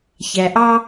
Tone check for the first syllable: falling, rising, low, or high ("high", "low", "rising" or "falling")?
low